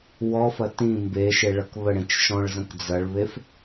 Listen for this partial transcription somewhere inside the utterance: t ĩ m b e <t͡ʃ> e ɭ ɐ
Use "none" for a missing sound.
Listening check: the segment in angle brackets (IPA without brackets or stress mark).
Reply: ʃ